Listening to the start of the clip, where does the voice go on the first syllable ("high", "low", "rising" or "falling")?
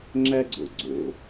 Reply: high